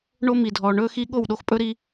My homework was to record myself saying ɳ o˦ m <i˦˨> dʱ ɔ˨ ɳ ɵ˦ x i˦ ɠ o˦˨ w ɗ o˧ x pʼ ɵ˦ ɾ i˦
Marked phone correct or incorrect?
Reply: incorrect